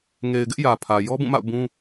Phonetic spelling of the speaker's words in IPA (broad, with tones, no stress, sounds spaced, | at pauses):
ŋ e˨ ɪ̯ ɡ ɪ˦ ʔ j ä˨ pʰ ä˨ j ɔ˦ b ũ˦˨ m a̰˦˨ ʊ̯ b ũ˦